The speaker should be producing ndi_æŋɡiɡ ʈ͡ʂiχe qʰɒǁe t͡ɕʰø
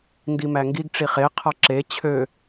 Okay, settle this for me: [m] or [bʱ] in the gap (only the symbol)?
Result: m